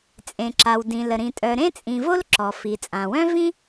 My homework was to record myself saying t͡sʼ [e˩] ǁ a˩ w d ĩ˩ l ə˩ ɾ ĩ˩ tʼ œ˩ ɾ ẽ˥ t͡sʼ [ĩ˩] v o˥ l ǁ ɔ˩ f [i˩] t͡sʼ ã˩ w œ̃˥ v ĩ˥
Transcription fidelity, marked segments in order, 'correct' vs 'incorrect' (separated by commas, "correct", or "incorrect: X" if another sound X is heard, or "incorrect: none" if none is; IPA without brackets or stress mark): incorrect: ẽ˩, correct, correct